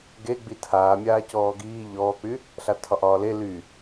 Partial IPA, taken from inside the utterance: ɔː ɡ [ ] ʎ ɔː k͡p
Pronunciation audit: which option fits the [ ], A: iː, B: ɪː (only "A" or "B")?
A